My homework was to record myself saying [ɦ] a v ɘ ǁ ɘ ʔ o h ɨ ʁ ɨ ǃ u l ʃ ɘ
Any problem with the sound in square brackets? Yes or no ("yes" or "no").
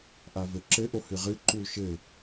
yes